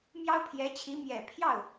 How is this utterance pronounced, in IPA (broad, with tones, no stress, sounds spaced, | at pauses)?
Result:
m j ɑ˥ ʊ̯ pʰ j ɛ˧˥ t͡ɕʰ i˧˥ m j ɛ˨˩ pʰ j ɑ˥˩ ʊ̯